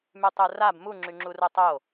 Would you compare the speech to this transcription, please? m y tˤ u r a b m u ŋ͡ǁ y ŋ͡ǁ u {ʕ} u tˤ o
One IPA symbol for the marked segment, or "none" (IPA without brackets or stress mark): r